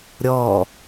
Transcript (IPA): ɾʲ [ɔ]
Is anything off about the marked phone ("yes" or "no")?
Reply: no